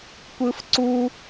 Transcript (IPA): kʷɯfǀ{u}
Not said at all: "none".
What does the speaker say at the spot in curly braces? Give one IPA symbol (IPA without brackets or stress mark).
u